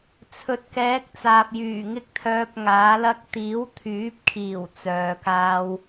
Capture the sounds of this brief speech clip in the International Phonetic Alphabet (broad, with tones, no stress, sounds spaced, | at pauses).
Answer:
t͡sʰ ɵ˨ t̚ k ɛː˨˥ k̚ t͡s aː˨ p̚ j yː˨˩ ŋ ɪ˥ k̚ t̪ʰ œː˧ p̚ ŋ aː˨˥ l ɐ˥ k̚ t̪ iː˨˥ w t̪ʰ yː˨˥ p̚ kʰ iː˨˩ w t͡s œː˨ k aː˧ w